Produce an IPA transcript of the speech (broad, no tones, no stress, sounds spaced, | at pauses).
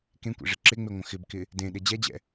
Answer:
k ẽ kʷ ḛ ʐ ɪ ǁ ɪ ŋ͡m e ŋʷ ə̃ x ɪ b k ɪ | d ẽ ɗ e d͡ʑ ɛ d͡ʑ ɛ̰